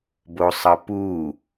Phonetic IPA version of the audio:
b o sˤ ʌ p u

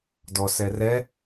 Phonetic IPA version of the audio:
d ɔ s ɛ r ɛ

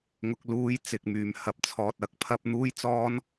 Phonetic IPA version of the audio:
ŋ ʊ˧ k̚ l uː˧ j t͡s ɪ˨ k̚ m yː˨ m h ɐ˨ p̚ t͡sʰ ɔː˨ t̚ ɐ˨˥ k̚ pʰ ɐ˧ p̚ n̪ uː˥ j t͡s ɔː˥ n

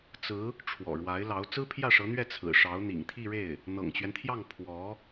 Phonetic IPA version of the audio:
t͡s ɹ̩˧˥ | ʈ͡ʂʰ w ɔ̰˨˩ ɻ w a˧˥ ɪ̯ l ɑ˧˥ ʊ̯ t͡s ɹ̩˥ pʰ j ä˥˩ ʂ ɤ˧˥ n̪ ɥ ɛ˥˩ t͡sʰ ɹ̩˨˩ ʂ ɑ˧˥ ʊ̯ n̪ ḭ˨˩ ŋ t̪ʰ i˥˧ ɻ e˥˩ ɪ̯ | n̪ ɤ̰˨˩ ŋ t͡ɕ ɥ ɛ˦ n t̪ʰ j ɑ˥˩ ŋ pʰ w ɔ˧˥

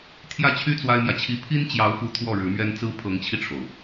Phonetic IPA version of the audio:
t̪ʰ j ä˥˩ t͡ɕʰ y˥ t͡s w a˥ ɪ̯ m j ä˨ t͡ɕʰ i˥ pʰ i˥ n t͡ɕ j ɑ˧˥ ʊ̯ f u˧˥ t̪ʰ w ɔ˥˩ ɻ ɻ̩˧˥ m ɥ ɛ˥ n t͡s ɹ̩˥ pʰ ɤ˧˥ ŋ t͡ɕʰ i˧ ʈ͡ʂʰ o˩ ʊ̯

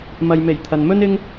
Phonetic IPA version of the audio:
m ɐ˨ j m e˨˩ j t̪ʰ ɐ˨ n m ɵ˥ n ɪ˥ ŋ

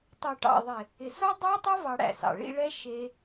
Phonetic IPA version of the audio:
tˤ o˨ ʈ ɑ̰˨ ðˤ ɪ˨ | ɪ˨ s o˦ dˤ æ˦ tˤ o˦ v ɑ˧ ɽ æ̰˨ s ɑ̰˨ ɭ ḭ˧ ɭ ɛ˦ ʃ e˧

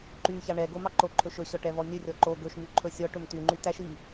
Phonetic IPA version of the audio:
ǃ y ç ɑ ɳ ɛ ɡ o m ɑ ǃ o ǃʰ ɵ ʃ ɵ ɕ ɔ ʈ ɛ v ɔ nʲ ɵ rʲ ɔ ǃ o ɡ ɵ ʃ m y ǃʰ ɵ sʲ ɔ ʈ ɵ m t y ŋ͡ǃ y t æ ʃ i

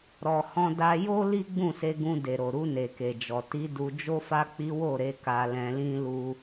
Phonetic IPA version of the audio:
ɾ ɔ˨ h ɔ̃˧ d a˧ j o˦ l i˦ ɡ͡b ũ˦˨ s e˧ ɡ ũ˧ d e˨ ɾ o˨ ɾ u˧ n e˨ k e˨ d͡ʒ ɔ˨ t i˨˦ d u˧ d͡ʒ o˦ f a˦ k͡p i˦ w o˦˨ ɾ e˧ k a˧ l ɛ̃˧ l ĩ˦ l u˦

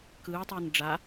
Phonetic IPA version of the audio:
k ɯː tˤ əː n ɖ͡ʐ a

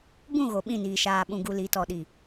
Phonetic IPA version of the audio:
b ũ˦˨ ɣ o˨ ɓ ĩ˦˨ n iː˨ ʃ aː˨ ɓ ũ˨ ɡ u˨ l i˨˦ t ɔ˨ ɗ i˨

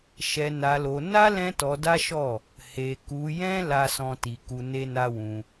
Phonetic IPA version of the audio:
ʃ ɛ˧ n a˧ l o˧ n a˦ l ɛ̃˦ t ɔ˧ d a˦ ʃ ɔ˦˨ | h e˧ k u˧ j ɛ̃˦ l a˦ s ɔ̃˦ t i˧ k u˧ n e˦ n a˦ w ũ˧

